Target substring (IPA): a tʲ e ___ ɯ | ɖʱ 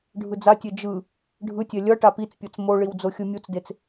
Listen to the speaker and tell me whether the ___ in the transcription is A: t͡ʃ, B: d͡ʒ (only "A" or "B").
B